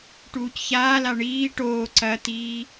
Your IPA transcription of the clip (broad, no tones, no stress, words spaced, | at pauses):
ʈuːcçaːla ɳiː ʈoː ǀɐt̪iː